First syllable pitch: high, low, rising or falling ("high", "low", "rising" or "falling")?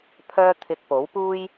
high